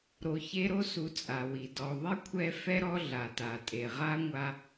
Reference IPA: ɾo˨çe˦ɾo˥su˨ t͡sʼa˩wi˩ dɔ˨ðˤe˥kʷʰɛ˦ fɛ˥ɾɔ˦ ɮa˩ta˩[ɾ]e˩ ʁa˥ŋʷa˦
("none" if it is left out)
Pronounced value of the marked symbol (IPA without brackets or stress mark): tʼ